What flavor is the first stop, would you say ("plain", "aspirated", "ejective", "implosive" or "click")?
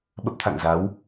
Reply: implosive